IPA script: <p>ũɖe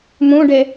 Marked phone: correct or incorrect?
incorrect